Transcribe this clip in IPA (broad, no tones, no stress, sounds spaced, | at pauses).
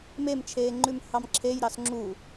m e m t͡ʃʰ eː ŋ͡ǃ ʉ m h ɑ m ǁʰ e j ɾ ɑ s ŋ͡ǁ u